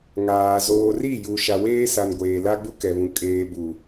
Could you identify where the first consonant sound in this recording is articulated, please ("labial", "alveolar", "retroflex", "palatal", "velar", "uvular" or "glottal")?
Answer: velar